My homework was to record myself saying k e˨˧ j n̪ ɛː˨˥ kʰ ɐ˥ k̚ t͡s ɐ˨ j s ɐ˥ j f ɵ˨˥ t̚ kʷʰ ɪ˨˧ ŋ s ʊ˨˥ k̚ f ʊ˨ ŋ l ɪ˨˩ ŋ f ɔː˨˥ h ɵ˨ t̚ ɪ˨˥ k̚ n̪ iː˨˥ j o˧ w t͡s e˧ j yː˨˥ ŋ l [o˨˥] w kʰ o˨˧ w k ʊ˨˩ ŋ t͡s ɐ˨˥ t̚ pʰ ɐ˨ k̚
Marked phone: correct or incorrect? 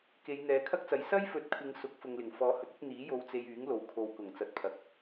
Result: incorrect